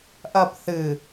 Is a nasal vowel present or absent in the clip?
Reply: absent